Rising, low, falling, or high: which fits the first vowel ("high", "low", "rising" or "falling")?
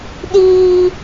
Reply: high